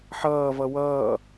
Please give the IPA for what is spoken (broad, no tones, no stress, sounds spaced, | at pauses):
ħ ʌː v ʌ w ʌː